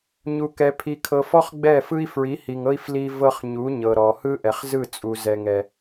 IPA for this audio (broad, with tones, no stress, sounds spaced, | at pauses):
ɲ u˨ k ɛ˨ pʰ i˨ kʰ ɤ˨ f ɔ˦ χ ɡ͡b ɛ˦˨ f ɯ˦ i̯ f ɹ i˨˦ h i˨ ŋ ɤ˦ i̯ f l i˦ v ɤ˦ χ ɲ u˨˦ ɲ ɤ˨ ɾ ɔ˨ h ɯ˦ ʔ ɛ˨ χ z ɯ˦˨ t͡sʼ u˨ z ɛ˨ ŋ ɛ˨